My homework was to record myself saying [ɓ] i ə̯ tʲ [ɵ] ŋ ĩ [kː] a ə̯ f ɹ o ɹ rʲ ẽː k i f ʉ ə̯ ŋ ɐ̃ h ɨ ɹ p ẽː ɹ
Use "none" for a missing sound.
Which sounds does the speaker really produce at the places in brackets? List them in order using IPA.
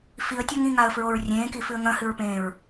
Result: f, ɵ, ŋ

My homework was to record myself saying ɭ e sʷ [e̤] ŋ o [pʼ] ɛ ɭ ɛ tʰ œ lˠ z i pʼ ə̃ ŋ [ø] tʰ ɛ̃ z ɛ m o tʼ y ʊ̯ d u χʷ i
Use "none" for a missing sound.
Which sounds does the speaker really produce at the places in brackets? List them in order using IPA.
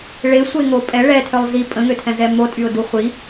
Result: e, pʼ, ø

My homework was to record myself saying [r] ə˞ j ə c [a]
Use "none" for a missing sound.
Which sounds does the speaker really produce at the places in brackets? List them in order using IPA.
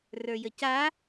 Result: r, a

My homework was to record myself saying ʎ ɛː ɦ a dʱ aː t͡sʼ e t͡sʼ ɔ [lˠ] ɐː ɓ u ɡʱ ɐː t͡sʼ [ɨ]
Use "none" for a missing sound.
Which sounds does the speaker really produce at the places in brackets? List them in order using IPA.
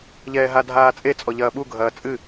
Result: ʎ, ɨ

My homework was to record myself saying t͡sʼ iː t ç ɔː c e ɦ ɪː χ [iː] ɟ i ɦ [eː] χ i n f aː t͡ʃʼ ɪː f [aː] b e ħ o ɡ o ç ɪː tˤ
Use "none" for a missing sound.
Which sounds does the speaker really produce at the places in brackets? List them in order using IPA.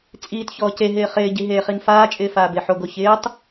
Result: ɪː, eː, aː

